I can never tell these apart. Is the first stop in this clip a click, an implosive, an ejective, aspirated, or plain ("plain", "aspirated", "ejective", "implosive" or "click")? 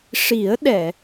implosive